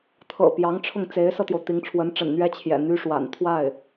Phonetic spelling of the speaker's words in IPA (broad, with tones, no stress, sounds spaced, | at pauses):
t̪ʰ ɤ̰˨˩ p j ɑ˧˥ ŋ ʈ͡ʂʰ ʊ˥˩ ŋ t͡s e˧˥ ɪ̯ s ɤ˧ t̪ j o˩ ʊ̯ t̪ i˧˥ ŋ ʈ͡ʂʰ w ə˧˥ n ʈ͡ʂ ə̰˨˩ n n̪ ɥ ɛ˥ t͡ɕʰ j ɛ̰˨˩ n̪ y˥ ʂ w a̰˨˩ n t̪ʰ w a˥˩ ɪ̯